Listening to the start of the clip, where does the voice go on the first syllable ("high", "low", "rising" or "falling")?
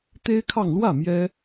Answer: high